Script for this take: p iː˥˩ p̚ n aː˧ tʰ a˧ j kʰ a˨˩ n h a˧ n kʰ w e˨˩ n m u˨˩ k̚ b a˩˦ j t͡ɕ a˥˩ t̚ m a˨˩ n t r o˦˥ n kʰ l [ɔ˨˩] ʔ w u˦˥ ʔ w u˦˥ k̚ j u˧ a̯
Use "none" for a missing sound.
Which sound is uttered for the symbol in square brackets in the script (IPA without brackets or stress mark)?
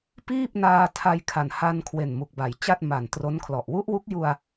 ɔ˨˩